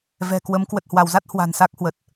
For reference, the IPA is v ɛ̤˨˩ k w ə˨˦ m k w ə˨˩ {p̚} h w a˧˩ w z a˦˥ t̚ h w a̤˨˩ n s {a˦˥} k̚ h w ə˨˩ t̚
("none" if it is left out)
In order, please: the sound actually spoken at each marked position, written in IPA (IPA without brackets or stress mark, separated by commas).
t̚, a˦˥